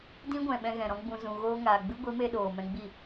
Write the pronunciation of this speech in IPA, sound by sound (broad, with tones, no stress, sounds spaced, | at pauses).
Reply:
d ĩ˦ ɡʷ ɛ̃˨ ɓ ɛ̃˧ ɣ ɛ̃˨ ɾ ɔ̃˧ ɡ͡b ũ˨ z ũ˨ ɣ oː˧ ŋ aː˨ ɡ͡b ɨ˦ ɡʷ i˨˦ m e˧ ɗ oː˨ m ɛ̃˧ ɡ͡b i˦˨